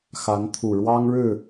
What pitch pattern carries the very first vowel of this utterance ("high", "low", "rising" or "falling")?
rising